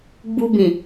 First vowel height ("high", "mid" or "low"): high